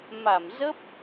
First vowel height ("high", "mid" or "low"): low